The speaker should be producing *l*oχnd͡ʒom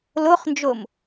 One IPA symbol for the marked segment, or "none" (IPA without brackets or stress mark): l